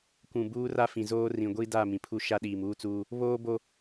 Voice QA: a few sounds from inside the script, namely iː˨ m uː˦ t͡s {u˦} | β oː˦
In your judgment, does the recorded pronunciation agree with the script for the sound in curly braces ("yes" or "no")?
no